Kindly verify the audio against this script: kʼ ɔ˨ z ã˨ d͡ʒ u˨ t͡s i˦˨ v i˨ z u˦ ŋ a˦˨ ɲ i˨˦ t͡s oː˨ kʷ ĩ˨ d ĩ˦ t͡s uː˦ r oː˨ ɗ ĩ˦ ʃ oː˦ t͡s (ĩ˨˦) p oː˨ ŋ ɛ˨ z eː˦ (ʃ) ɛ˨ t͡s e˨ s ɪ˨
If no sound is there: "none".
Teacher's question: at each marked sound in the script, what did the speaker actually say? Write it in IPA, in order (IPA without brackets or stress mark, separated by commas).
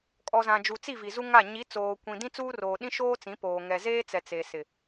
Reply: ĩ˨˦, t͡s